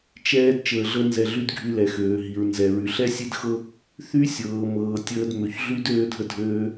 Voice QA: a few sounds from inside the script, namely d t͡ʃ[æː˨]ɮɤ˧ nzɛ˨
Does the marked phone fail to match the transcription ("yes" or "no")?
yes